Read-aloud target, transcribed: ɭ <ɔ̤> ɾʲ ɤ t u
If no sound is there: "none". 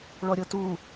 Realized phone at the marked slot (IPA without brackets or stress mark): ɔ